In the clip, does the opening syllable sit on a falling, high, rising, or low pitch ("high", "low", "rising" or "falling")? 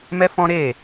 high